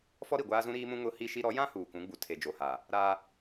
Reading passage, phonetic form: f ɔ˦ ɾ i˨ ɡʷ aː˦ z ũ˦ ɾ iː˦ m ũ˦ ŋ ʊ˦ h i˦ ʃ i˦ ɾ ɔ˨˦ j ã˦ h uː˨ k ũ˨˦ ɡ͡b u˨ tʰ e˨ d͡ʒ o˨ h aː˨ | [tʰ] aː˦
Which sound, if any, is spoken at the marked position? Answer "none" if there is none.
ɾ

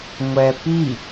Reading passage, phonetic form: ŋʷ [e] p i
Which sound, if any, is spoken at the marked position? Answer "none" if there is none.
ɛ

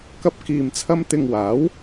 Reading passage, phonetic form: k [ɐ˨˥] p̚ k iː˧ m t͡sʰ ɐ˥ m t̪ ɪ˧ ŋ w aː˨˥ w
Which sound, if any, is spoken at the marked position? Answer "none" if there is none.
ɐ˥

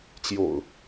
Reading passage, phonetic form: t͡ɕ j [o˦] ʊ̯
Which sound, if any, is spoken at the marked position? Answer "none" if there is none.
o̰˨˩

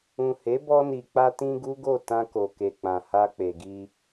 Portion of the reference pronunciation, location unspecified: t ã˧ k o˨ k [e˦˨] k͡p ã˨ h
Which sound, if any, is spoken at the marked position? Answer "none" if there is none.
e˨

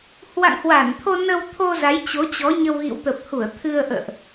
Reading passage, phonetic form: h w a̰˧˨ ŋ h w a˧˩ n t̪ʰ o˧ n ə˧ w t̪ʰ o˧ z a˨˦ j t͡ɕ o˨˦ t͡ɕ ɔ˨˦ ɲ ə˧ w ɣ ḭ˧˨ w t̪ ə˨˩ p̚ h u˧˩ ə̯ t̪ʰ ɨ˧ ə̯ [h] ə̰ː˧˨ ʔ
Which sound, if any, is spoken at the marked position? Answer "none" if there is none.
ʔ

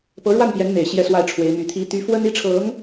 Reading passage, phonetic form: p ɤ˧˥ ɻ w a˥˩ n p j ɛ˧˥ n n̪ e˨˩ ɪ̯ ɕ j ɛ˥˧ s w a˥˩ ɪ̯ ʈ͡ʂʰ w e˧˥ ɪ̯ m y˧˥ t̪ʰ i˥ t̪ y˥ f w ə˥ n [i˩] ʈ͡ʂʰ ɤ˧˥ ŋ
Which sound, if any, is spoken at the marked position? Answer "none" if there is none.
i˥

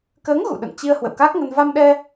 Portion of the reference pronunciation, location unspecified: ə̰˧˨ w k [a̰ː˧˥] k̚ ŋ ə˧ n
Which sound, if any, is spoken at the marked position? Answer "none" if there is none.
aː˦˥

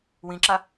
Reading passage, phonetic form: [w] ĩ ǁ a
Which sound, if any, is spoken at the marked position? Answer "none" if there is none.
w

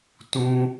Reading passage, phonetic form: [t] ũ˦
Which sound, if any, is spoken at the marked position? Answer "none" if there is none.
t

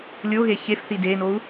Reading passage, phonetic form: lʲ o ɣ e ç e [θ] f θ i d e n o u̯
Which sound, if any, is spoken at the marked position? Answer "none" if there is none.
none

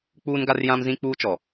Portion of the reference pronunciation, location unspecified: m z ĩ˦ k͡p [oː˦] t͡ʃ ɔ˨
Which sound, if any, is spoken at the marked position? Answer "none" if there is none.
uː˦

